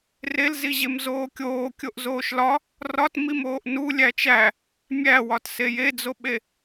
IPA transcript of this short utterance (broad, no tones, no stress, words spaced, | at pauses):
relziʑem zoːkʲoː kʲoʔzoːʃlɒ | rɒtmim oːʔnu lʲæt͡ʃæ | mʲæwɒt sejed͡zoɓe